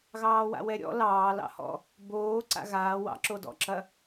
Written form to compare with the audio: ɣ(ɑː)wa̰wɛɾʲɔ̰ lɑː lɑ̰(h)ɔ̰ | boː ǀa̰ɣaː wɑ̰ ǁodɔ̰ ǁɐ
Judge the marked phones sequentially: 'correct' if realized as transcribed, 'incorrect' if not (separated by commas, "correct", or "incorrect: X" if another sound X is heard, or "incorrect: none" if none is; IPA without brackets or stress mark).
correct, correct